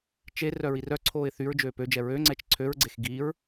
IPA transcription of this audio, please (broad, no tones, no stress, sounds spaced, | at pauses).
t͡ʃ e r œ ɹ i r œ ǀʰ oː ɪ̯ θ y ɹ d͡ʒ øː p ø d͡ʒ ɛ ɹ ø ŋ͡ǀ ɛ t͡ʃ ǀʰ ø ɹ ɡ͡ǀ e x ɡ iː ɹ